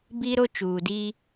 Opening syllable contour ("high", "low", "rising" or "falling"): high